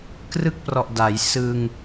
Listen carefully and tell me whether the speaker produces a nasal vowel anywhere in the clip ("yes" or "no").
no